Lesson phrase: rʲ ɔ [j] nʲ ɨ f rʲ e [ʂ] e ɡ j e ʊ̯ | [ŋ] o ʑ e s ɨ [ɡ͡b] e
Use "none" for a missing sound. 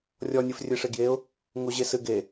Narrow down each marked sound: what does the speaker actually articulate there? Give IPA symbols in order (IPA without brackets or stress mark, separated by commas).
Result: none, ʂ, ŋ, ɡ